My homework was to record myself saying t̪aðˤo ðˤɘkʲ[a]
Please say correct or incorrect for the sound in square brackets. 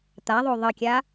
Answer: correct